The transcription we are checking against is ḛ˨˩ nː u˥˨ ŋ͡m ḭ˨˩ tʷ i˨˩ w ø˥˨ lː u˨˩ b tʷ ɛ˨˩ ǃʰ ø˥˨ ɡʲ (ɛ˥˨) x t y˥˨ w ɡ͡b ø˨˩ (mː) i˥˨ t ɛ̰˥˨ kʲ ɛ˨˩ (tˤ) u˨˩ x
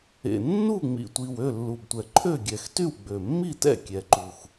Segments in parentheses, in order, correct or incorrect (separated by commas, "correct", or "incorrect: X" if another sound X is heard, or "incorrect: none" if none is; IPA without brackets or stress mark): incorrect: ɛ˨˩, correct, incorrect: ǃ